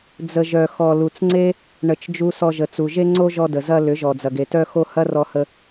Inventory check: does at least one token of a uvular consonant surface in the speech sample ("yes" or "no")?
no